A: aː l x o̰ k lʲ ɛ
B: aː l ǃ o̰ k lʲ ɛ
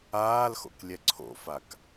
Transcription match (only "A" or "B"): A